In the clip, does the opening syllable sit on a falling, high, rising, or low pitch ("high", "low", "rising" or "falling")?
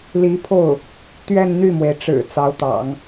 rising